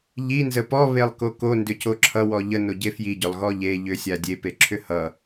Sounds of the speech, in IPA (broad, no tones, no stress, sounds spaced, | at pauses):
ʎ i n z ə p ɔ β e lˠ k o k o n d ʏ c o ǁʰ ʌ w ɔ ʎ ə n o ɟ e f j i ɟ ʏ lˠ ɣ ɔ ʎ e ʎ ʏ sʲ a dʲ e p e ǁʰ ʏ h ʌ